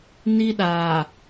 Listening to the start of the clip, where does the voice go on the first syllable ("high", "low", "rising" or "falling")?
high